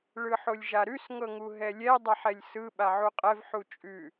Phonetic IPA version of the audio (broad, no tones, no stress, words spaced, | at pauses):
ɭɯħolʲʒaɾʉs ŋɤŋuɦɛlʲɛ dˤaħɛlʲsɯ ɓaʕuqʼɛv ħut͡ʃʼʉ